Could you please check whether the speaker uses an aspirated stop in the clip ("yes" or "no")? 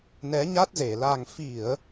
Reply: no